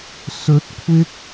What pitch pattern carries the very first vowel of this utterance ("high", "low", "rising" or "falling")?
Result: rising